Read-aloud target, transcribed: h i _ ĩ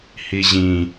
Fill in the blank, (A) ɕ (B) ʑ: B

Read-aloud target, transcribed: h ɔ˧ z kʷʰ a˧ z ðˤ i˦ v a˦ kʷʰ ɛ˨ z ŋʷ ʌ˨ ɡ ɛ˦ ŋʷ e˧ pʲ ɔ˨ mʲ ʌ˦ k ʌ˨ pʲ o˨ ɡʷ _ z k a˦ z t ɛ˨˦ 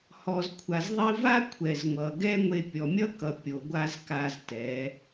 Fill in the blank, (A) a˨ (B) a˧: B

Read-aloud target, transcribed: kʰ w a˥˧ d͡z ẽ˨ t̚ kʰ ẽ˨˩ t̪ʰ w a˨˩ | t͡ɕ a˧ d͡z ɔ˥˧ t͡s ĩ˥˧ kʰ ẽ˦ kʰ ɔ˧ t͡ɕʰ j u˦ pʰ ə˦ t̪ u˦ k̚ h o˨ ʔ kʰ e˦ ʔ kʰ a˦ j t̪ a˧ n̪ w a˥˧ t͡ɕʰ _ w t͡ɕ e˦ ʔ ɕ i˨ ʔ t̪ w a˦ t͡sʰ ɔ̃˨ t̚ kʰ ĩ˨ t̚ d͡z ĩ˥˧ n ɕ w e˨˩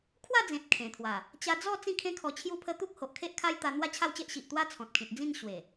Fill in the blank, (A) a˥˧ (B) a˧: A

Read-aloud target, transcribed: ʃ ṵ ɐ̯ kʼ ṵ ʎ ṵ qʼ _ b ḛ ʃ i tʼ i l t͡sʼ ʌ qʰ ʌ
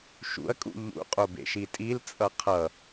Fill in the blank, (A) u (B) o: B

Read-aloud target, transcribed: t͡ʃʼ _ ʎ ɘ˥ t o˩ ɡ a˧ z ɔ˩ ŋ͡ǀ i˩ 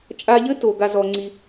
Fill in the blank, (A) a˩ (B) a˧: B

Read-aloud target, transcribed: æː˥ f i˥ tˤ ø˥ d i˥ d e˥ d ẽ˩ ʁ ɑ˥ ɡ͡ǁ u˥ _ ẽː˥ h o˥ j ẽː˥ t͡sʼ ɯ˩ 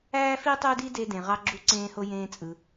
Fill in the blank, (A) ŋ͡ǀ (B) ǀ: B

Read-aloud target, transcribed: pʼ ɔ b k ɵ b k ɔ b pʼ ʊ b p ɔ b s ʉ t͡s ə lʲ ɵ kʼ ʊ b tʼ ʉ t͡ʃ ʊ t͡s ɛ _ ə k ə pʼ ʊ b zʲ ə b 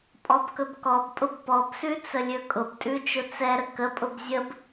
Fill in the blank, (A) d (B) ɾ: B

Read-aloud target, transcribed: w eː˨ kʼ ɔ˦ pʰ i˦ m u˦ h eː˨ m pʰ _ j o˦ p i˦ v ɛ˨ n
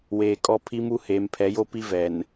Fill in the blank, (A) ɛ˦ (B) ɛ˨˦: B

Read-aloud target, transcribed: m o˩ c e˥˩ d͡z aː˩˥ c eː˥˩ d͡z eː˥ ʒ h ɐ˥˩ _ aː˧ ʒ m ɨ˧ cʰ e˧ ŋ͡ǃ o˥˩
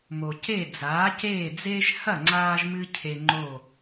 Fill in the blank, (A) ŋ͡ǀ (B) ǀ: A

